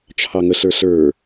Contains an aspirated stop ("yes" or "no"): yes